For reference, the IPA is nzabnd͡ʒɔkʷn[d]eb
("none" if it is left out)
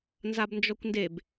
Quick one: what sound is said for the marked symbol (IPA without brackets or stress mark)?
d